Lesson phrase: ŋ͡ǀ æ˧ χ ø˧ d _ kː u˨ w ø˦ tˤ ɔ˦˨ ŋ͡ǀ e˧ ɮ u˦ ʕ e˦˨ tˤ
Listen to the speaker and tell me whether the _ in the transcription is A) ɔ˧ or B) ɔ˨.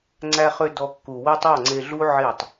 A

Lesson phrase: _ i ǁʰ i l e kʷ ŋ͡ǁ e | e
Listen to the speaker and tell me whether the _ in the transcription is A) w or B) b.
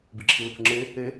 B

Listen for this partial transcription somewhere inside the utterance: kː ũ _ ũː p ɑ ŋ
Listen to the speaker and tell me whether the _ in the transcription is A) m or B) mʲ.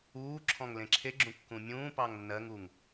B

